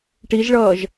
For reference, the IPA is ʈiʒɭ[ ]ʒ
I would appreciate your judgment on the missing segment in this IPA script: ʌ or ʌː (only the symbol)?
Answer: ʌː